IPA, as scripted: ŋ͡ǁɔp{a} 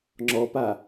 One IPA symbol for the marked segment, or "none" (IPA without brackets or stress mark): a